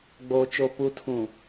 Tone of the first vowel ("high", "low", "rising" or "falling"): low